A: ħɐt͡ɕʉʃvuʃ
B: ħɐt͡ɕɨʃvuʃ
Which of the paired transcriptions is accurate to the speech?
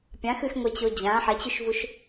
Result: A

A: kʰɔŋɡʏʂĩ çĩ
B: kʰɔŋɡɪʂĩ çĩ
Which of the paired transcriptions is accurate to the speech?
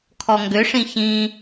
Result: A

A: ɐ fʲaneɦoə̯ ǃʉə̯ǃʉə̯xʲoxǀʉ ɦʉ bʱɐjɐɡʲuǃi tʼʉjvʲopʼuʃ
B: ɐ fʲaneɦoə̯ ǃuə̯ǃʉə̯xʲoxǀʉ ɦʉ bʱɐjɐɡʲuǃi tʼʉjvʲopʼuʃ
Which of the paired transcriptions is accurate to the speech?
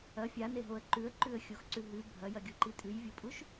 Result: A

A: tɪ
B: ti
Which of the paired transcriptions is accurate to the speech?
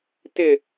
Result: A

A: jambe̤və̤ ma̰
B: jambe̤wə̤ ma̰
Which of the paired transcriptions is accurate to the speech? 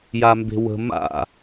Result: B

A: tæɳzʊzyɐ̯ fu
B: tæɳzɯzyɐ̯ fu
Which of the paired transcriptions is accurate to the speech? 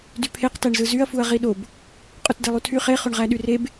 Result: B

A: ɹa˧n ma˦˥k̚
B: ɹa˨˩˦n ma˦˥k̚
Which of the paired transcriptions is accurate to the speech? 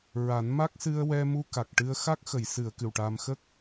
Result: B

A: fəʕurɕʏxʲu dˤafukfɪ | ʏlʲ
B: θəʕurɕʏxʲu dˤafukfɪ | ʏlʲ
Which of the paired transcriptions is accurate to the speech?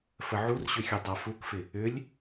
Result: A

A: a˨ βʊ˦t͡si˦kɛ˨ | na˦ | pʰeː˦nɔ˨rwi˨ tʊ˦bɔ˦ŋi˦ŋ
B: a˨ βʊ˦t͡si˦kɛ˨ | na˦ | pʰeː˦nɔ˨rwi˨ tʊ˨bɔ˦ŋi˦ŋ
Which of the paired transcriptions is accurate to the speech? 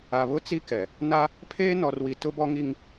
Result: A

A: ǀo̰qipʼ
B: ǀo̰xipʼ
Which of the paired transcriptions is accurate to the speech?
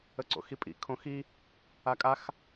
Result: B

